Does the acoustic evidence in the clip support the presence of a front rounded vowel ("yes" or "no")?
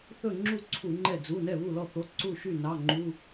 yes